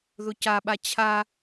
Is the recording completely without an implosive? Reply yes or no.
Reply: no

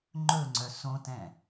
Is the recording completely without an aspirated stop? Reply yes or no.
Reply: yes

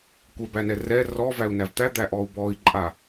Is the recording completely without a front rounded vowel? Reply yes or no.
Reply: yes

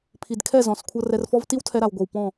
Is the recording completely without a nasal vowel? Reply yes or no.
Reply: no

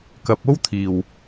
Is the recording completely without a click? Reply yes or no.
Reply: yes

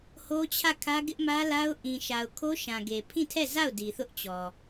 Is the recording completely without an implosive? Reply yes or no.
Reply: yes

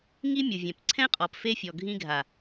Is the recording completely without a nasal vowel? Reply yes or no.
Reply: no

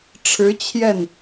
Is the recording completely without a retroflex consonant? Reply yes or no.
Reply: no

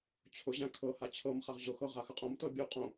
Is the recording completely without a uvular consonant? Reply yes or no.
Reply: no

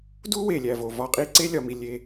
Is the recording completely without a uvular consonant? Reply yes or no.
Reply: no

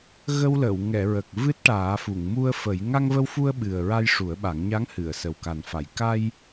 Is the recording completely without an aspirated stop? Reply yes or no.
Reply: yes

